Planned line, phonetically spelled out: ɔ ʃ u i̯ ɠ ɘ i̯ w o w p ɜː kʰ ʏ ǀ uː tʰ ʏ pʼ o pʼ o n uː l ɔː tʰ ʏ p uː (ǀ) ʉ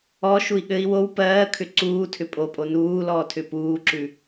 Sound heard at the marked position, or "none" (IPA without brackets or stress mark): ǁ